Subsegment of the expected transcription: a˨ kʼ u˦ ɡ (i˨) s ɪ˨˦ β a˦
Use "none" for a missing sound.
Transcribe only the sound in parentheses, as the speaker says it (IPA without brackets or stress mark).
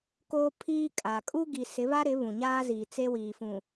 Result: i˨